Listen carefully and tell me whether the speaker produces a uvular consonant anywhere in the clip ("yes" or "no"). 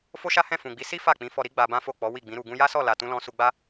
no